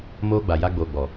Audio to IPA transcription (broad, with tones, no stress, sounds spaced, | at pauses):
m oː˦ ɡ͡b a˨ j a˦ ɡ͡b oː˨ ɡ͡b ɔ˨